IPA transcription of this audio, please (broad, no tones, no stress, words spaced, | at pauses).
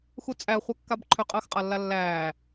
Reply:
xut͡sʼæ χʷɛkːabǃʰʏ qʼəːxqʼalːalːæː